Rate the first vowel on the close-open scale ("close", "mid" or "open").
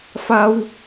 open